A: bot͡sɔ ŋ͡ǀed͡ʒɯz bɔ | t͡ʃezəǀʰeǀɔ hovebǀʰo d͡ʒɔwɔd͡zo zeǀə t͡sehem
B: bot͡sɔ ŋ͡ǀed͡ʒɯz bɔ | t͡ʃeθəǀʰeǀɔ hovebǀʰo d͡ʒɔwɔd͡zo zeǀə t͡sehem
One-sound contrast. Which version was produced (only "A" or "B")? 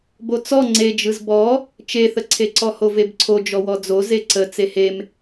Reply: B